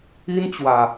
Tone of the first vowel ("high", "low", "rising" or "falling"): high